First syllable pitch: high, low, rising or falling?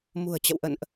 low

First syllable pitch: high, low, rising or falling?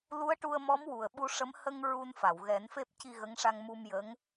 rising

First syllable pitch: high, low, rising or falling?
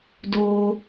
high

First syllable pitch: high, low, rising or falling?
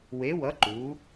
rising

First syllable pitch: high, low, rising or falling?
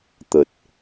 low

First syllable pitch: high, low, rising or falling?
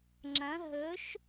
rising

